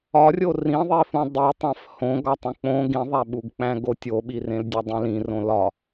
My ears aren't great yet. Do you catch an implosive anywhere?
yes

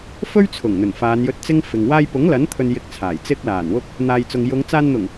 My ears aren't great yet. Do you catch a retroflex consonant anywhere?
no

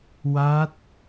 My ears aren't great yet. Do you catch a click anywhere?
no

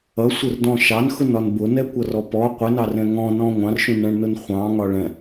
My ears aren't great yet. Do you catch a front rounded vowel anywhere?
no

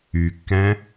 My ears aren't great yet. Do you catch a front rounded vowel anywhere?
yes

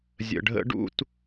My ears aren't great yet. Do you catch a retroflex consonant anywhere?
yes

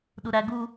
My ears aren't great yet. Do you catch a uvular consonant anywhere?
no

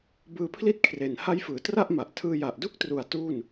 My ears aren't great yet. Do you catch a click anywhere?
no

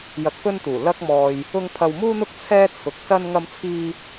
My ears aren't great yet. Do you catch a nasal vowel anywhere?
no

